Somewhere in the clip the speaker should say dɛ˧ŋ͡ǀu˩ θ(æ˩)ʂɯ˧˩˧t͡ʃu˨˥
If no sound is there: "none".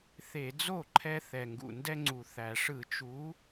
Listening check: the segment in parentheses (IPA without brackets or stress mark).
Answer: æ˩